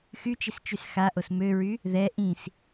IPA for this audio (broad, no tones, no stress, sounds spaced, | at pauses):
x y t͡ʃ i s t͡ʃ y s x a ʔ o s m ø ɹ y | ð ɛ ʔ ĩ s